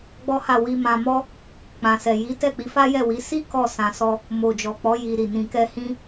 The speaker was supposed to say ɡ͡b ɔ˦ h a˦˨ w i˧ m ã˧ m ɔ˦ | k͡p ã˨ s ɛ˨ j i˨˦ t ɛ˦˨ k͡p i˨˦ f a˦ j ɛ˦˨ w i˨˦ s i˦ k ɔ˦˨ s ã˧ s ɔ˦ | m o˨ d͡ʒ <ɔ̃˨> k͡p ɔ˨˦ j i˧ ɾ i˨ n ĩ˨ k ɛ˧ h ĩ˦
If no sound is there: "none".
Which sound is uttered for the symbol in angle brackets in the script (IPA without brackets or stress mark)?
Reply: ɔ˨